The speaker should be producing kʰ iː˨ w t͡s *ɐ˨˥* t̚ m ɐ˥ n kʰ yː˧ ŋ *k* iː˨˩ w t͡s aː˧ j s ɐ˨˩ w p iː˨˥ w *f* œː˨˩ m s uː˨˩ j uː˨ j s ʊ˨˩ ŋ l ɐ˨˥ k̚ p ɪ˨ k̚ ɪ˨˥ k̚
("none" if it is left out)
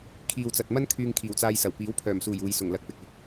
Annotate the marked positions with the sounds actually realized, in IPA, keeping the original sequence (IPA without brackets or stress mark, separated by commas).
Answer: ɐ˨, kʰ, pʰ